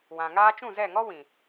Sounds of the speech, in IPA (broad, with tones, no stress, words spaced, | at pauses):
wã˨ ŋaː˧t͡ʃũ˦˨zɛ˦˨ŋɔ˦ wĩ˨